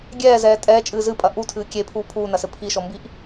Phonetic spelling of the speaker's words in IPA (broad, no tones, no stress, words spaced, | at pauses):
ɡʲɛːzɛː tʼɛːt͡ʃʼɨː zɨpʼɐ ʔutʰɨː kʲepʰuː pʰuːnɐsɘ pʰiʃɔmbiʔ